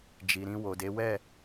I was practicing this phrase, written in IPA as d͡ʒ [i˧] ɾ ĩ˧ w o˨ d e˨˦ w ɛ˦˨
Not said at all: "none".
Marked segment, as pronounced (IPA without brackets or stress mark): i˨